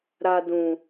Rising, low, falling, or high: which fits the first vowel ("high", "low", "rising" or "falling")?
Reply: high